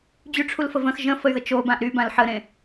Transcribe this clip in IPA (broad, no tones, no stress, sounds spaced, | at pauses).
d͡ʑ y ʈ͡ʂʰ u l f ə v ə̃ x ʒ ə̃ f ə y̯ ð ə t͡ʃ o b ã ʔ ɾ y b ã l ħ ə ɾ ẽ